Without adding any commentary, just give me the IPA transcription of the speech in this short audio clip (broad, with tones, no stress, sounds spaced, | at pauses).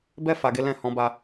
b ɛ˦ f a˧ ɡ e˦ l ɛ̃˦ h ɔ̃˧ b a˧